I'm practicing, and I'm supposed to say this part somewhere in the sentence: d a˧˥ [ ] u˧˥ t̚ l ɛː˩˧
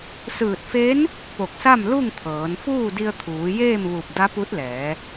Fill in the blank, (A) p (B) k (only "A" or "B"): A